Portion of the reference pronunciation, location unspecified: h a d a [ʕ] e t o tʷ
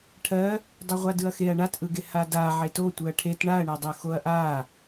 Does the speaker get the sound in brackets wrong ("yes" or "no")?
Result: no